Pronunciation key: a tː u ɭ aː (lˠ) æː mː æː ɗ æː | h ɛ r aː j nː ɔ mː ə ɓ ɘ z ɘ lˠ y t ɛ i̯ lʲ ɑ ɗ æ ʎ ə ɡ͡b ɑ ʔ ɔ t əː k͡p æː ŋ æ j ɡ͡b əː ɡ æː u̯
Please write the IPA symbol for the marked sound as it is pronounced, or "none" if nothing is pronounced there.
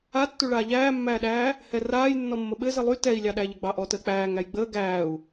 ʎ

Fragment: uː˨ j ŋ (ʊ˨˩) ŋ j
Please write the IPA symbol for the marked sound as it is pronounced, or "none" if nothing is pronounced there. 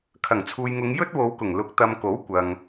ʊ˨˧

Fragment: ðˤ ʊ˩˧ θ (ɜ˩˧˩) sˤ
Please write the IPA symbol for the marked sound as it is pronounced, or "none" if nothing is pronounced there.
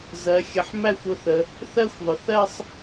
ɜ˥˧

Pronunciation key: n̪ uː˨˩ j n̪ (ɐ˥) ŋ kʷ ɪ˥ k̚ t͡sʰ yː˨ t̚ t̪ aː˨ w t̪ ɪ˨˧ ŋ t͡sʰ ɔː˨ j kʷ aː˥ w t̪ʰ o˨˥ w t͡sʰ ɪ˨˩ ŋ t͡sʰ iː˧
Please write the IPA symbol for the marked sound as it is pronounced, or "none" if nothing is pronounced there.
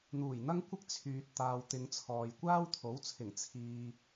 ɐ˥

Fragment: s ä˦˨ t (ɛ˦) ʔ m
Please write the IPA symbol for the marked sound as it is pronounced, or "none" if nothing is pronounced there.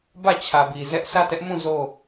ɛ˦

